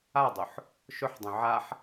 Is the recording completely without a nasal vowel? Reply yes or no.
no